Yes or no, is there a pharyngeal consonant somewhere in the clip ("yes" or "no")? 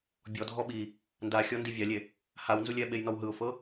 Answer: no